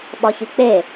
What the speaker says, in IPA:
ɓ ɒ ç i k͡p e

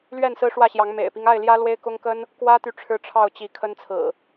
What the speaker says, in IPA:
l ɥ ɛ˥˨ n s ɹ̩˦ ʂ w ä˥˨ ɕ j ɑ˨˦ ŋ m ḛ˨˩ ɪ̯ p i˦ ŋ a˥˨ ɪ̯ l j ä˦ l w e˦ ɪ̯ k ʊ˦ ŋ k ə˦ n | k w ä˦ t̪ y˨ ʈ͡ʂʰ ɻ̩˦ ʈ͡ʂʰ ɑ˥˨ ʊ̯ t͡ɕ i˨˦ kʰ ə˦ n t͡sʰ ɹ̩˨˩

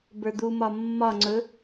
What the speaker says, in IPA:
b ə˞ d̪ u m ɒ mː ɒ ŋ͡ǀ ɵ

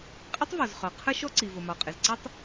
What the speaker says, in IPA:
qʼ ɪ˥ tˤ v ɔ˩ z χ ɒ˩ qʰ ə˥ ʃ ɔ˥ ǀ i˩ v ʊ˩ m ɒ˩ qʼ ɪ˩ z ǀ ə˥ tˤ

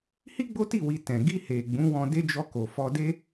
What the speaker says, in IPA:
h i˦ ɡ͡b o˦ t i˦˨ w i˧ t ɛ̃˨ ɡ i˧ h e˨ ɡ͡b ũ˨˦ w ɔ̃˧ d e˦ d͡ʒ ɔ˧ k o˨ f ɔ˧ d e˦

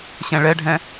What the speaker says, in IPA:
ɕ ɛ̃ ɭ ɛ ɖʱ ɛ̃

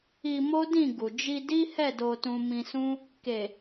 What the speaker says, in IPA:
i˧ m o˦ d ĩ˦˨ ɡ u˨ d͡ʒ i˧ d i˦ h ɛ˦˨ d o˧ t ũ˧ m ĩ˧ s ũ˦ | k e˨

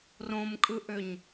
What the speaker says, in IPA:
r õ m kʼ ɯ ʔ ø ɲ

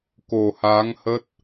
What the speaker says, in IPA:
k o˨˩ h aː˨˦ ŋ h ə˦˥ t̚

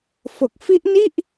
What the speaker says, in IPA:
f o˨˩ k̚ f i˦˥ ʔ n i˥˩ ʔ

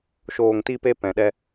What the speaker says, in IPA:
ʃ oː˨ ŋ t i˧ p e˧ p ɛ̃˨ ɗ ɛ˧

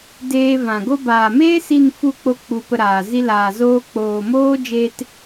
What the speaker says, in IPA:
d eː˧ v ã˨ ɡ o˧ b aː˨ m eː˦ s i˦˨ n f u˦˨ k͡p o˧ k͡p u˧ p ə˧ ɾ aː˨ z i˦ l aː˨ z oː˧ k͡p oː˨ m oː˦ d͡ʒ e˧ t

